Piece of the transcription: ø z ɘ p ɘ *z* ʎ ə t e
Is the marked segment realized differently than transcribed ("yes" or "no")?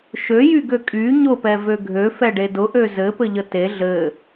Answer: yes